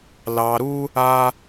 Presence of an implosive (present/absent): absent